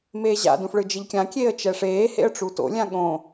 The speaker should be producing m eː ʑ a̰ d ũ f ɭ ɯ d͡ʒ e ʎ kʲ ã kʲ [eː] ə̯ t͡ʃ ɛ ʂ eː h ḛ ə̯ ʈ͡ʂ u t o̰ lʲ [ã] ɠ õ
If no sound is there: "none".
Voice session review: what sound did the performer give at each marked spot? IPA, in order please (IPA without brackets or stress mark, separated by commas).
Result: eː, ã